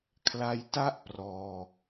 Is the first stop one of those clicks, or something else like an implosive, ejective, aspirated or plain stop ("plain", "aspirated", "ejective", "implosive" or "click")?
aspirated